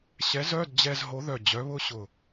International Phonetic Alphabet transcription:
ɕ ɛ˨˥ z œ˧˥˧ d d͡ʑ ɛ˧ z ɦ o˨˥ ð œ˧˩ d͡ʑ œ˨˥ β ʊ˧˥˧ ɕ ʊ˧˩

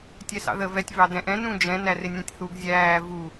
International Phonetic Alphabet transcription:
tʲ ɛ s ɑ̰ ð ə v ɛ tʲ v ɑ d ɛ̃ ʔ ɛ̃ n ũ d͡ʒ ɛ̃ n æ r ɪ nʲ ɛ̃ tʲ θ u ɡ zʲ æː v u

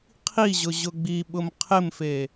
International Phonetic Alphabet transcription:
qʰ i ʑ ʊ ʑ ʊ ɡ͡b i ɓ ʊ m qʰ ɪ m f e

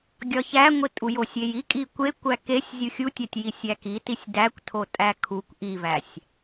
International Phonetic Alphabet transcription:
ɡʲ ɒ ç æ ŋʷ i tʼ u j o sʲ e j i kʼ i kʷ e kʷ æ k e sʲ zʲ u xʲ u tʲ æ tʲ j i sʲ æ k i t i sʲ d æ kʷ tʰ o tʼ æ kʰ u kʷ ʔ i v æ sʲ

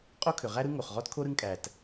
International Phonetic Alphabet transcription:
qʼ o˥ kʰ ʏ˩ ʁ æ˥ ɾ ɯ˥ ŋ o˩ χ ʁ ɔ˥ t kʰ o˥ ɾ ɯ˥ ŋ kʼ æ˩ t

